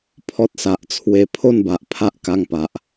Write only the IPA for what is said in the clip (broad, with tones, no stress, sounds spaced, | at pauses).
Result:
pʰ ɔ˦ t̚ s a˨ ʔ t͡sʰ w e˧ pʰ o˥˧ n b a˨ ʔ pʰ a˦ ʔ k a˧ ŋ p a˨ ʔ